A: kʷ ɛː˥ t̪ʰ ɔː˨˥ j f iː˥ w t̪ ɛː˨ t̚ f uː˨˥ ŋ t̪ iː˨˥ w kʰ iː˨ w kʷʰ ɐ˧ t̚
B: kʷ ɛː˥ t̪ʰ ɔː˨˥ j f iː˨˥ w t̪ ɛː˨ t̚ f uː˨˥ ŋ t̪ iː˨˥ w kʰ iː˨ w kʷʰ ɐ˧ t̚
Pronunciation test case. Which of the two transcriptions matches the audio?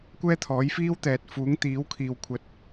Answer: A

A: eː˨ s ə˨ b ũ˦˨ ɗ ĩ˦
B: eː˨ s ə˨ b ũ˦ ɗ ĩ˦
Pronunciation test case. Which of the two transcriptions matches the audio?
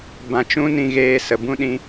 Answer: B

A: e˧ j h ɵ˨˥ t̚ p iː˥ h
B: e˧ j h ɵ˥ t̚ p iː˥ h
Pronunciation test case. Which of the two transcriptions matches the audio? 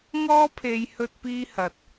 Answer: B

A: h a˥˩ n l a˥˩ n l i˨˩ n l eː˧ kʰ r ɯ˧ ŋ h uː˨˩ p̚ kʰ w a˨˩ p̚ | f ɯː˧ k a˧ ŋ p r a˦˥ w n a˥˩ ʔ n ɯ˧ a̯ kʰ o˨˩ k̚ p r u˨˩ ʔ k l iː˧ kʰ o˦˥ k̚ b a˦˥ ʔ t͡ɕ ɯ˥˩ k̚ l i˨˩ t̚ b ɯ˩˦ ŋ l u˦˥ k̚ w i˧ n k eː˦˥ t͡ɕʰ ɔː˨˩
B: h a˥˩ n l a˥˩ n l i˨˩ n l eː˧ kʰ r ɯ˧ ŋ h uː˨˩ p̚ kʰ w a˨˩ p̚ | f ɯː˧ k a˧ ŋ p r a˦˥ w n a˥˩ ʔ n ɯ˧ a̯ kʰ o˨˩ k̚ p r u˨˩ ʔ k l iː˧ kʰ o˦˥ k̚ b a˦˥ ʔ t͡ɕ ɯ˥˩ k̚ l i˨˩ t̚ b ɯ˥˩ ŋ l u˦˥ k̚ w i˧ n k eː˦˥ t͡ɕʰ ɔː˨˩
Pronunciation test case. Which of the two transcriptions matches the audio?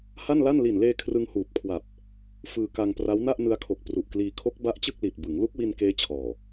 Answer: A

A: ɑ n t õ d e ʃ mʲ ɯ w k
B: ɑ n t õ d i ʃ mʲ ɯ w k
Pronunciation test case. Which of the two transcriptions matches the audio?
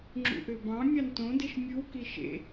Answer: A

